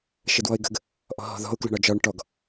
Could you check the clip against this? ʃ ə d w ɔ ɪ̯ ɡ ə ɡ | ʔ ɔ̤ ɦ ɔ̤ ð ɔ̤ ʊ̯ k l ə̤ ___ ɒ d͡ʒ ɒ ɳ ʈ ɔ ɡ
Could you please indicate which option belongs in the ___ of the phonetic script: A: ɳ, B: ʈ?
A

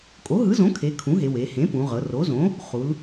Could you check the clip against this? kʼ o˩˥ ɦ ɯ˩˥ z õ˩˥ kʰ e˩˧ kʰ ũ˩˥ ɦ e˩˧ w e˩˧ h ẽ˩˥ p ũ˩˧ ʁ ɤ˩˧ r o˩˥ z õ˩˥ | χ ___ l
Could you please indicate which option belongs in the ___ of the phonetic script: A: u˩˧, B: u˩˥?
A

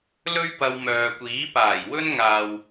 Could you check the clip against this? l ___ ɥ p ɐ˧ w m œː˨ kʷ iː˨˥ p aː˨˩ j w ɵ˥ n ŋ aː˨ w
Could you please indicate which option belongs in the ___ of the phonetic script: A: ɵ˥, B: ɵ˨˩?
A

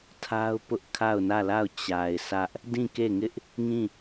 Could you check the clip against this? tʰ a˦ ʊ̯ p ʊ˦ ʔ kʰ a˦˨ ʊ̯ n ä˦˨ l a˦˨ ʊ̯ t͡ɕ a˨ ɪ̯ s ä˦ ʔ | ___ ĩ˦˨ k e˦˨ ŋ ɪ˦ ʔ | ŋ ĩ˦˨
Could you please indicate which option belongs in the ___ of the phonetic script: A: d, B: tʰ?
A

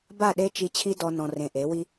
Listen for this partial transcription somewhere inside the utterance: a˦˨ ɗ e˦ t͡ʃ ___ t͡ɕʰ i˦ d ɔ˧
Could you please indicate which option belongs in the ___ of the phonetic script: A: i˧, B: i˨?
A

